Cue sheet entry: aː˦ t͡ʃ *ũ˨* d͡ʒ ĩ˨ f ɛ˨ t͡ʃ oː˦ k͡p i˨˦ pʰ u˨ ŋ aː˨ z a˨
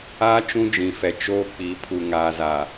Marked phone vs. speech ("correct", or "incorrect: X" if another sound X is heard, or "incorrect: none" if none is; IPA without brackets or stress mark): incorrect: ũ˦